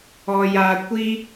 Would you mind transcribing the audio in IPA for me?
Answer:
ɔ˨ j a˨ kʷ i˦

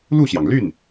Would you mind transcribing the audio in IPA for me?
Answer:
l u˥˩ ɕ j ɑ˩ ŋ l y˥˩ n

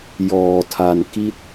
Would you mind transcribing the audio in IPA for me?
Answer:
j ɔː˧ tʰ a˧ n k i˥˩ t̚

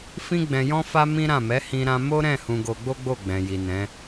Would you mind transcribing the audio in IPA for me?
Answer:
f ĩ˦ ɡ͡b ɛ̃˧ j ɔ̃˦ f a˦ m ĩ˦ ɾ ã˦˨ m ɛ˨˦ h ĩ˧ ɾ ã˧ m o˦ ɾ ɛ̃˦˨ h ũ˧ ɡ o˧ ɡ͡b o˦ ɡ͡b o˦˨ ɡ͡b ɛ̃˨ j i˨ n ɛ̃˨˦

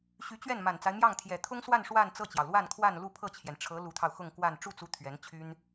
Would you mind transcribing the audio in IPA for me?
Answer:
ɕ y˧˥ t͡ɕ ɥ ɛ˥˩ n m a˨˩ n t͡s a˦ ɪ̯ m j ɑ˥˩ ŋ t̪ʰ j ɛ˨˩ t̪ʰ ʊ˥ ŋ s w a˥˧ n ʂ w a˥˧ n t͡s ɤ˥˩ t͡ɕ j ɑ˩ ʊ̯ l w a˥˧ n kʰ w a˥˧ n l u˥˧ pʰ ɤ˥˩ t͡ɕʰ j ɛ˩ n ʈ͡ʂʰ ɤ˧˥ l u˧˥ t̪ʰ ɑ˧ ʊ̯ x ʊ˥˧ ŋ k w a˥˧ n ʈ͡ʂ u˥˩ t͡s u˧˥ t̪ʰ ɥ ɛ˧˥ n t͡ɕʰ y˥ n

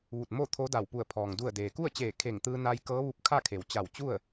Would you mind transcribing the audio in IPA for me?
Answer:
ʋ u˧˩ t̚ m o˥˨ t̪ʰ o˧˥ d a˧˩ w p u˧˩ ə̯ pʰ ɔː˩ ŋ d u˧˩ ə̯ d eː˩ k u˥˨ ə̯ t͡ɕ eː˧˩ kʰ e˧˩ ŋ t̪ ɯː˧ n a˧ j k ɤː˧˥ ʋ u˧ p̚ kʰ a˥˨ kʰ e˩ w t͡ɕ a˧˩ w t͡ɕ u˥˨ ə̯

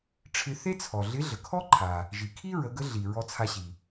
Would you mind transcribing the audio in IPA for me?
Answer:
ʈ͡ʂʰ ɪ˧ θ e˥ t͡sʰ ɔ˩ ɮ ɪ˧˥ ɮ ə˩ kʰ ɔ˥ ǃʰ a˩ | ʒ i˩ kʰ i˥ ɹ ə˩˧ ɡ ə˧˥ ɮ i˩ ɹ ɔ˧ t͡sʰ a˧ ɕ i˩

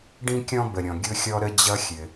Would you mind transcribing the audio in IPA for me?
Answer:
ɖ ĩ˥ kʲ ɔ̃˥ b ə˩ ɾʲ ɔ̃˩ ɡʲ ʊ˥ xʲ ɔ˥ ɾ ə˥ d͡ʑ ʌ˥ xʲ ɘ˩

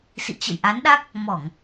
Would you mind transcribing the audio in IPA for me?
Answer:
s ḭ˧˨ t͡ɕ ə̰˧˨ j ʔ a˨˦ n ɗ a˦˥ k̚ | m ɔ˧˩˨ ŋ

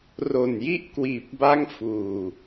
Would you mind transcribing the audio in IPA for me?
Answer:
r o˨˩ n j i˦˥ ʔ k w iː˨˩ p̚ b a˦˥ ŋ f uː˨˩

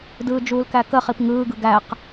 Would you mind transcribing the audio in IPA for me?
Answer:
d ɯː d͡ʒ uː l k æ k əː χ i p ŋ ɯː ɡ ɯ ɡ æ q

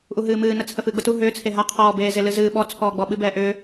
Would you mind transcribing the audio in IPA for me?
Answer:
ʔ u ɦ ɨː m ɨː n ə t͡sʰ ə f ɨː ɡ͡b ə t u ɦ ʏː t͡sʰ e ɦ a qʰ ɔː b eː z e l ɨ z ɨː ɓ ɔ t͡sʰ ɔː ɡ͡b ɔ ɓ ɨ b ɛː ʔ ʏː

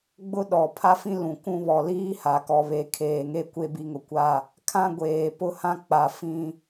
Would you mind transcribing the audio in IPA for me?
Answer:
ɡ͡b ʊ˦ ɗ ɔ˨ pʰ a˦ f ĩ˦ l ũ˨ k ũ˦ β ɔ˨ l iː˦ h a˨ k ɔ˨ β e˨ kʰ eː˨ ŋ e˦ kʷ e˦ b i˨˦ ŋ ʊ˨ kʷ a˦˨ | kʰ ã˦ ɡʷ eː˨ p ʊ˦ h ã˦ k͡p a˨ f ĩ˦

